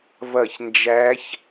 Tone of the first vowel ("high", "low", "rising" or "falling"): falling